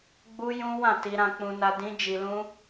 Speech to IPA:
ɡ͡b u˦ j ũ˦ w ã˦˨ t i˧ ɾ ã˧ k͡p ũ˧ n a˧ d ĩ˦ d͡ʒ i˧ l ũ˦

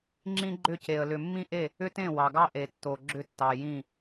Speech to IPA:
ŋ͡ǁ ĩ˦ ɡ͡ǃ ʏ˦˨ c e˨ ə̯ l ʏ˨ mː ĩ˦ ʔ e˦˨ | ʏ˦ t ẽ˦˨ w ɑ˨ ɡ ɑ˦ ʔ e˨ tː o˨ ɡ͡ǁ ʏ˦ tː ɑ˨ j ĩ˦˨

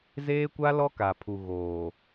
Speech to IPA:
z eː˦ kʷ a˦ l ɔ˦ k a˨ pʰ u˨ ɣ oː˨

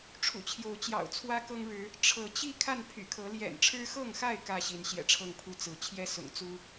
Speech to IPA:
ʈ͡ʂʰ ṵ˨˩ t͡ɕʰ j o˨˦ ʊ̯ t͡ɕ j ɑ̰˨˩ ʊ̯ t͡sʰ w ä˦ k ɤ˦ ŋ ɻ ɻ̩˨˦ | ʈ͡ʂʰ ɤ˨˦ t͡ɕ i˥˨ kʰ a˥˨ n pʰ y̰˨˩ kʰ ɤ˨˦ l j ɛ̰˨˩ n ʈ͡ʂʰ ɻ̩˦ x ɤ˥˨ ŋ x a˥˨ ɪ̯ k ä˥˨ ɕ i˨˦ n ɕ j ɛ̰˨˩ ʈ͡ʂʰ ɤ˥˨ ŋ pʰ u˥˨ t͡s ɹ̩˨˦ t͡ɕʰ j ɛ˦ s ʊ̰˨˩ ŋ t͡s u˦

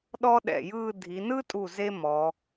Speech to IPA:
ɗ ɔ˥ ɗ ɛ̰˧˩ j ɯː˥˧ dʱ i˩˧ n ɯ˥ tʼ u˧˩ z e˥ m ɔ˩˧

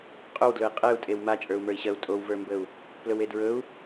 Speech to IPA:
qʼ ɵ w d l ɵ i̯ qʼ e u̯ tʼ e w m a t͡ʃʼ ə˞ u̯ m ə˞ i̯ ɕ ɜ u̯ tʼ o w v ə˞ m b ə u̯ | p l ɵ w e d ɹ ɵ u̯

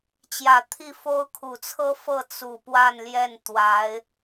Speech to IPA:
t͡ɕ j ä˨˩ t̪ʰ i˥˩ f o˥ ʊ̯ kʰ u˨˩ t͡sʰ ɤ˥ f ɤ˥˩ t͡s u˨˩ p w a˥˧ n l j ɛ˥˩ n t̪ w a˧˥ ɪ̯

